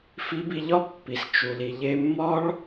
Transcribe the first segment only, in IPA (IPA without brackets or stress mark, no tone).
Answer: f